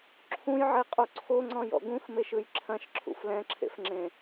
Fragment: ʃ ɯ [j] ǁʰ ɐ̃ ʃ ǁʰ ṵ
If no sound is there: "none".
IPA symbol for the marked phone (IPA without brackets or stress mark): j